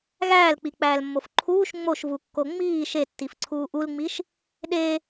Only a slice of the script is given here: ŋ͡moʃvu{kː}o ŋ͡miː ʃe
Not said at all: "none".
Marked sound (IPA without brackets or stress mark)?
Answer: kː